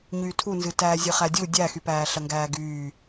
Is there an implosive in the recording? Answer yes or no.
no